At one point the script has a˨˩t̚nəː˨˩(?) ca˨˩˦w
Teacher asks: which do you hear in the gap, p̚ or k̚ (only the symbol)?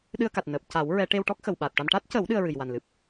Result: p̚